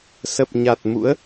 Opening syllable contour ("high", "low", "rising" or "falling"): low